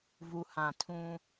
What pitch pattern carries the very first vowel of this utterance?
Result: low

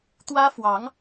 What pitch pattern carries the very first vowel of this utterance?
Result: high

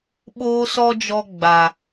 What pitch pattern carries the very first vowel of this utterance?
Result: high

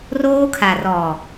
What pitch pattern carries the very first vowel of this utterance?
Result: high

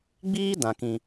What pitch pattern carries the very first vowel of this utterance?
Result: high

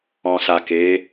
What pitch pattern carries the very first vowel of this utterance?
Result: low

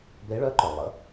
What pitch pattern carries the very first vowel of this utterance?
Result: rising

